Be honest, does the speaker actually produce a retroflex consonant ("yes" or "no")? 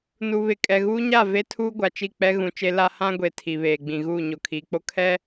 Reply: no